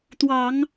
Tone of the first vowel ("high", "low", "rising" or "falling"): low